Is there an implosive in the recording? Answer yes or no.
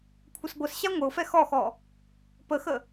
no